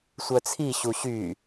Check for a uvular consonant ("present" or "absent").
absent